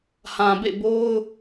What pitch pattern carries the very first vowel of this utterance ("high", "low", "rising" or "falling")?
low